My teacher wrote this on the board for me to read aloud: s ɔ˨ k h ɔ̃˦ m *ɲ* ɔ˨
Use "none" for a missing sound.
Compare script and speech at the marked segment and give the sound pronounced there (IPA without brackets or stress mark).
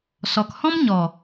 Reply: ɲ